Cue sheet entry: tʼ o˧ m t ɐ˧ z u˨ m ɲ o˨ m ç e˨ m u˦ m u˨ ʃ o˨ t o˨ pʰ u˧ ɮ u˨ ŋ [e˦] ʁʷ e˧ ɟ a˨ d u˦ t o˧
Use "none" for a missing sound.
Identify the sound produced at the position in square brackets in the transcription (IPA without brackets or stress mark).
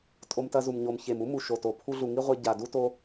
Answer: i˦